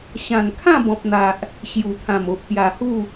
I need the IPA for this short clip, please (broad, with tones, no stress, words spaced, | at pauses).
ɕã˨˩nkʰã˥˧bɔ̃˨p̚n̪a˨ʔ | ɕju˨˩t̪ʰã˨˩m o˨ʔpja˨˩hu˥˧